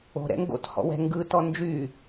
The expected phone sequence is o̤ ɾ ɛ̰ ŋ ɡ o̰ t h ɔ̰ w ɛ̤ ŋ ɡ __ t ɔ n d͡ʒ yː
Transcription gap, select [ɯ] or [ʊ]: ɯ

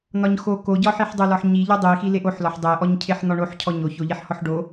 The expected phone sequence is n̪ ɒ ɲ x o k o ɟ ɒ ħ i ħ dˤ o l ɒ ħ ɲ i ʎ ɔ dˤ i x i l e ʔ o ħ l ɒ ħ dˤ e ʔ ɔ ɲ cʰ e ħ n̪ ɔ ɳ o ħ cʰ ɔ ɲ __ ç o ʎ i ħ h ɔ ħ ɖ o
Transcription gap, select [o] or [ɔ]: o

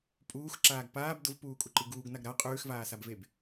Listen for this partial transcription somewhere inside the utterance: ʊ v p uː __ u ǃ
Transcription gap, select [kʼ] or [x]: kʼ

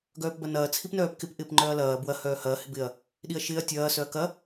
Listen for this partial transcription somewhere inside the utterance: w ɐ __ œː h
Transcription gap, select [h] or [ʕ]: h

